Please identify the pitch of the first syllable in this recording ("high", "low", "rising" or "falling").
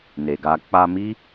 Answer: low